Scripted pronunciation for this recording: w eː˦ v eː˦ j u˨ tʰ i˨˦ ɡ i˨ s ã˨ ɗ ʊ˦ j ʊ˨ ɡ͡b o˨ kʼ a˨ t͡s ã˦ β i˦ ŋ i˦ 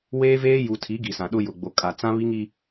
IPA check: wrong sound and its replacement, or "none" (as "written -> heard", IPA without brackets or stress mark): none